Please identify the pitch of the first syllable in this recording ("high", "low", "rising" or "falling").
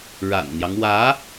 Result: low